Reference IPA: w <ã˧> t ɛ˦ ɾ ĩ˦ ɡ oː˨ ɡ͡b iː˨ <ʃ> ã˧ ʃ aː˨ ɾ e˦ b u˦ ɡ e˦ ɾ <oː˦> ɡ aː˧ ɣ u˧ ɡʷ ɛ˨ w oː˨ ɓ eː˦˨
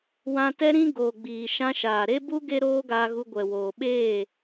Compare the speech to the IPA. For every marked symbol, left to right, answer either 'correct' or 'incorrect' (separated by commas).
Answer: correct, correct, correct